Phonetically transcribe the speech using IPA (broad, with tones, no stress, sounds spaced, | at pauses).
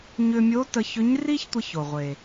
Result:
ɲ ʏ˧ mʲ o˧˥ t ə˧ ç ʏ˧˥ ɲ r i˥ ç tʷ ə˧ ç o˩ ʁʷ e˩